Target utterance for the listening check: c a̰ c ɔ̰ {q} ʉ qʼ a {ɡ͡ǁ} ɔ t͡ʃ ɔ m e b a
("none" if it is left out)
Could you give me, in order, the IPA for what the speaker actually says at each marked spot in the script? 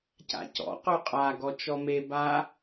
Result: q, ɡ

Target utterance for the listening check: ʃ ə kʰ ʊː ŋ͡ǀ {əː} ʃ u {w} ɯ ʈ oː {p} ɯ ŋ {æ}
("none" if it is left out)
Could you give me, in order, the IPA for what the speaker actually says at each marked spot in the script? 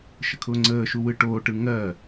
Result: əː, w, ʈ, ɜ

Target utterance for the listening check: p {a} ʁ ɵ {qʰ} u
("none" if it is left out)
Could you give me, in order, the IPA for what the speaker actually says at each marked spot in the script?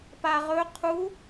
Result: a, qʰ

